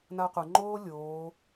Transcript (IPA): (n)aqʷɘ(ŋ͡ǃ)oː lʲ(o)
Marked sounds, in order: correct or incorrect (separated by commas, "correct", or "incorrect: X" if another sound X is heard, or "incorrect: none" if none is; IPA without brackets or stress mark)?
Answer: correct, correct, incorrect: oː